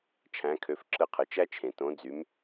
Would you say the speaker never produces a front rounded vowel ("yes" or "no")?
no